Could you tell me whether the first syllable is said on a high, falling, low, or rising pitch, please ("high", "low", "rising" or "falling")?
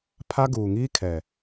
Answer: high